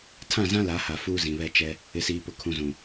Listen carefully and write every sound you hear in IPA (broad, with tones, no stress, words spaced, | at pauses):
tʰã˦˨zã˦la˨˦ha˨ fuː˦zĩ˨βɛ˦ t͡ʃɛ˦ | ɪ˨siː˨pʊ˨ kʰũ˨zũ˨